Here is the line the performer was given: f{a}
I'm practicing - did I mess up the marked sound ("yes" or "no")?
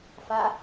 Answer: no